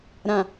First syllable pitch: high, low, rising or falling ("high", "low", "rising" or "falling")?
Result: low